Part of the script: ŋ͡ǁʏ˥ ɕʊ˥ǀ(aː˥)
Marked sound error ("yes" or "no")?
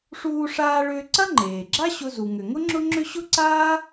no